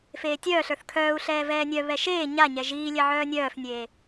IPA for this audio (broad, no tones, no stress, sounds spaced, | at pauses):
f eː tʲ œː ɬ ə˞ θ kʰ œː u̯ ɬ ɛː v ɛː nʲ œ β ɛ ʃ eː ɲ a ɲ ɛ ʒ iː lʲ ɛ ʕ œː nʲ œː f nʲ eː